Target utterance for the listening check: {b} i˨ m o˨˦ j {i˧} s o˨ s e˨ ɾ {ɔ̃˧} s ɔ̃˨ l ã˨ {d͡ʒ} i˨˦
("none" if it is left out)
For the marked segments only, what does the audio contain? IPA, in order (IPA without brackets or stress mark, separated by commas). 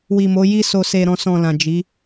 w, i˧, ɔ̃˨, d͡ʒ